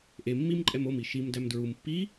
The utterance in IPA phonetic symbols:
ʔ e mː i m ǃʼ ɛ m o m i ʃ i m d æ m d ɹ u m pː i

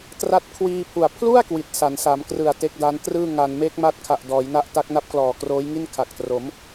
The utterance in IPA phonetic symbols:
t r a˦˥ t̚ kʰ w iː˧ pʰ u˨˩ a̯ pʰ l u˥˩ a̯ k w i˨˩ t̚ s a˩˦ n s a˩˦ m k r ɯ˨˩ a̯ t e˦˥ k̚ d a˦˥ n t r ɯː˥˩ ŋ a˧ n m eː˦˥ k̚ m a˦˥ t̚ kʰ a˨˩ ʔ d ɔː˩˦ j n a˦˥ ʔ t a˦˥ k̚ n a˦˥ p̚ k l ɔː˨˩ k r oː˦˥ j ŋ i˥˩ n kʰ a˨˩ k̚ t r o˩˦ m

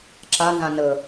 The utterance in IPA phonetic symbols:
ǁ a n z ã n ə

